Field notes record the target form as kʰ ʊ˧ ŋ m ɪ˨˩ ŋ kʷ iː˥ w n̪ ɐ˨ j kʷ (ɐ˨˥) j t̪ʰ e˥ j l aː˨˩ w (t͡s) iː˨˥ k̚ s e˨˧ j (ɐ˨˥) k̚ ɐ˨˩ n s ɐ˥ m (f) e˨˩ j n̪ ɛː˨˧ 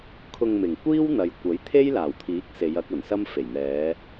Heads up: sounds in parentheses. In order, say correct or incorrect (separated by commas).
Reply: correct, incorrect, correct, correct